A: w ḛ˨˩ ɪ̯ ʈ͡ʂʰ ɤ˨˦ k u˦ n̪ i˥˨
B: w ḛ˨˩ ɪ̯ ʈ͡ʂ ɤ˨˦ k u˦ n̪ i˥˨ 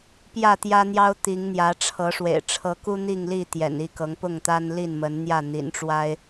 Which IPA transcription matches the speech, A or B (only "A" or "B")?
A